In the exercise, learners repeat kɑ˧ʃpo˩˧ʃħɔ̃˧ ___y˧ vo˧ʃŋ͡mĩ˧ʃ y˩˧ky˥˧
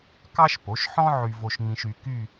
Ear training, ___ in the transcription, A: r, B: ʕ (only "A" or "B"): B